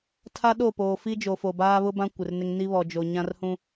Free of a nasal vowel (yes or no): no